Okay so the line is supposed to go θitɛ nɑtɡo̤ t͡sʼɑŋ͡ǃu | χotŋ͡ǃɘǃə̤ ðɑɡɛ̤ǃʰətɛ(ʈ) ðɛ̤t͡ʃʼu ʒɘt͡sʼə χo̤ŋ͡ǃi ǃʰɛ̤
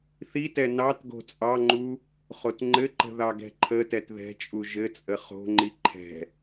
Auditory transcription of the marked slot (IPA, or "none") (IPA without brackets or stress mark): t